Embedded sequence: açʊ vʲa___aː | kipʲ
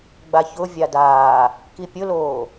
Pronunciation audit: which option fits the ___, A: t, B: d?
B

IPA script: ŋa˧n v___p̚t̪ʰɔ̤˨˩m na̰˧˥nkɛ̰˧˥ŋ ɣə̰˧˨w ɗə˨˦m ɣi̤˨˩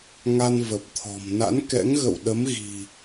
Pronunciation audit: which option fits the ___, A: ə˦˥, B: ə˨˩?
B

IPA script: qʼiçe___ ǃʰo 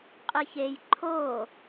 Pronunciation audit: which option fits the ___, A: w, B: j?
B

